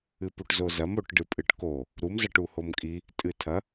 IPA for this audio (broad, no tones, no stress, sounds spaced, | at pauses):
ɨ p u ʈ z o z ɐ m o ʈ ɖ ɨ pʼ ɨ ʈ k o | ɾ u m z ɐ ʈ u h o m kʼ i | tʼ ɨ tʰ ɐ